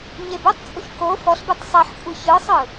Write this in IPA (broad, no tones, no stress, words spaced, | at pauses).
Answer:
ɲebutˤt͡sʼuç ko fɔɬbɯtˤ sˤeħkʷʼɯ çɯsˤɯ